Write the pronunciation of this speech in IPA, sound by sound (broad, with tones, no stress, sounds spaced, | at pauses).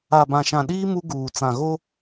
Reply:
a˨ b ã˨ ʃ ã˨ ɗ iː˦ m u˦ ɡ uː˨ t͡s ã˨ ɣ o˦